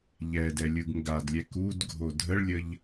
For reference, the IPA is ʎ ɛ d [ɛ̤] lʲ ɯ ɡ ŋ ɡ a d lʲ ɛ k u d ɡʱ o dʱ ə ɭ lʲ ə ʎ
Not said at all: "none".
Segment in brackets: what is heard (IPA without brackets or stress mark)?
ɛ